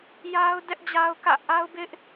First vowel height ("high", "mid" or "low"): low